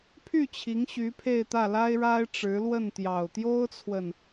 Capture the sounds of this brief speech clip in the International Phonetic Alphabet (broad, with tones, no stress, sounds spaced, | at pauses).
pʰ y˥˩ t͡ɕʰ i˧˥ ŋ ɕ y˧˥ pʰ e˥˧ ɪ̯ t̪ ä˥˩ l a˥ ɪ̯ ɻ a˥ ɪ̯ ʈ͡ʂ ɻ̩˧˥ l w ə˥˩ n t̪ j ɑ˨˩ ʊ̯ t̪ j o˥ ʊ̯ t͡sʰ w ə˨ n